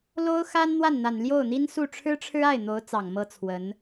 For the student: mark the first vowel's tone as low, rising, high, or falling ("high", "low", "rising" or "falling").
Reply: high